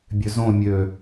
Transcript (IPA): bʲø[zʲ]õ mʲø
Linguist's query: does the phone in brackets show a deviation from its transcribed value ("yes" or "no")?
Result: yes